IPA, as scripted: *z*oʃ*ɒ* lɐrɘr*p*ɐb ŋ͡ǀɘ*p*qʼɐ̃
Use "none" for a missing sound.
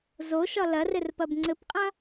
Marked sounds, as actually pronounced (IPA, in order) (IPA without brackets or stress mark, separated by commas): z, ɒ, p, p